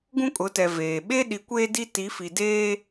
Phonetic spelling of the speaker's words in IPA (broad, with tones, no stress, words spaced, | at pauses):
ɡũ˦kʼʊ˨˦tɛ˨ veː˨ ɓe˦ɗi˨˦ kʷeː˦di˦ ti˨˦fi˨deː˦